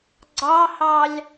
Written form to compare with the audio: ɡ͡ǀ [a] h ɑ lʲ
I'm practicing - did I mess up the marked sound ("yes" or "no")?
yes